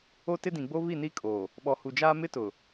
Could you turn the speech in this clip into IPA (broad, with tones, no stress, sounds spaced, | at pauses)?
o˦ t ɪ˦ d ĩ˨ ɡ͡b o˦ β i˦˨ n i˦ kʼ o˨ | ɓ ɔ˨ h u˨ d͡ʒ aː˦ m ɪ˦ t ʊ˨